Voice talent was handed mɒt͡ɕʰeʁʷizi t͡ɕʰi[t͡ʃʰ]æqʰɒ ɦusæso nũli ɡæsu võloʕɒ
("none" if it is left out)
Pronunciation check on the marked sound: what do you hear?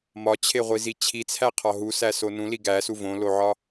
t͡sʰ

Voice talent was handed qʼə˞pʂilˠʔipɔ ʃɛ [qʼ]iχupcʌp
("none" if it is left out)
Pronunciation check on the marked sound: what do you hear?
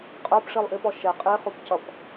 qʼ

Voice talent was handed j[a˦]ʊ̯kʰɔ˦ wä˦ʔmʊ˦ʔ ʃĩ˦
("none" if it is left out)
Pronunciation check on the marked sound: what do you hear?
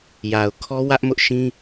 a˨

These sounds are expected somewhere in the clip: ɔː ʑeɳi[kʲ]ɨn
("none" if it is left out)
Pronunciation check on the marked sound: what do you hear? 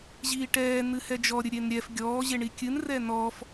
kʲ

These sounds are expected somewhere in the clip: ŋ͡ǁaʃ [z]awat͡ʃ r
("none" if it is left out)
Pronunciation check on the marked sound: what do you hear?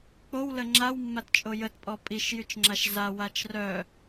z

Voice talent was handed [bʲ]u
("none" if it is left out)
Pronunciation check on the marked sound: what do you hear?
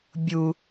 bʲ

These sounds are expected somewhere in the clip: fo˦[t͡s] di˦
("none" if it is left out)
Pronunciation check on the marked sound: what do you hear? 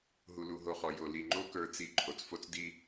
t͡s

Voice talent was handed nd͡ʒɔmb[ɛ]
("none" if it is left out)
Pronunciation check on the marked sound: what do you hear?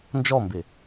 ɪ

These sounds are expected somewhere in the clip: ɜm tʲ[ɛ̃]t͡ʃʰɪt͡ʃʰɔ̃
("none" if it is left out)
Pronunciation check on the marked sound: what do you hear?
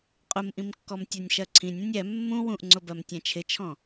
ɛ̃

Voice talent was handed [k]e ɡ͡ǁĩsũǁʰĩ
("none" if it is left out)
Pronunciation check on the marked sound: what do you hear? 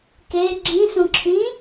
k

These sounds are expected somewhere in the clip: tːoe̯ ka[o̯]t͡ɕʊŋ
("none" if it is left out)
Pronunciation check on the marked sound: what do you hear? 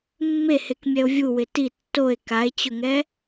e̯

